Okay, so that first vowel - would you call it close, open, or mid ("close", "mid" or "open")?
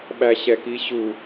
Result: open